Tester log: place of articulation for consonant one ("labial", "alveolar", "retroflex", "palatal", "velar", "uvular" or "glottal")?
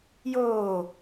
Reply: palatal